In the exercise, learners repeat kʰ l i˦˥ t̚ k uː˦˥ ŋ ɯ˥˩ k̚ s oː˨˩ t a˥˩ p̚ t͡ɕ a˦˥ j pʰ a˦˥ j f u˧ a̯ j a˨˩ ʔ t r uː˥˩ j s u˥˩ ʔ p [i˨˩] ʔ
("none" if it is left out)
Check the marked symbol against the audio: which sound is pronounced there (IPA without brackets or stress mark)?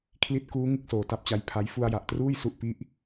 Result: i˥˩